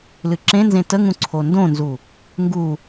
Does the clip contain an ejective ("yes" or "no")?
no